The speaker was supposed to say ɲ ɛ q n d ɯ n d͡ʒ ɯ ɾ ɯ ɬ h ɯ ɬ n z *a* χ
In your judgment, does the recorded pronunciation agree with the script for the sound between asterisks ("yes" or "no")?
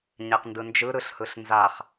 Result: yes